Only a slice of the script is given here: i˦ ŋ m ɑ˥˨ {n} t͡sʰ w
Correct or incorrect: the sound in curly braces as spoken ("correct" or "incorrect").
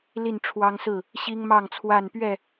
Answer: incorrect